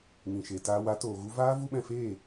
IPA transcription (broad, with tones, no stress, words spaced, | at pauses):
ŋĩ˨ʃe˨ taː˧wa˨˦ toː˨ɣu˦ vaː˦ vu˦ɓɛ̃˧feː˦˨